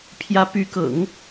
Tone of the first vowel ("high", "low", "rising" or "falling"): rising